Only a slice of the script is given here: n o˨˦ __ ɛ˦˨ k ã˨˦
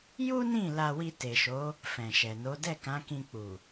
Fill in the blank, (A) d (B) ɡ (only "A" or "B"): A